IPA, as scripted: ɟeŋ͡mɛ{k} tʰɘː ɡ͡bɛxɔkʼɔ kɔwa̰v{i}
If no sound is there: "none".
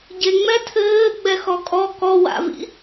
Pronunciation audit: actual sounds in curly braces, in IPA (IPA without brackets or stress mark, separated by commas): none, ḭ